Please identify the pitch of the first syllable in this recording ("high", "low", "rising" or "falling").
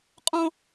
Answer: high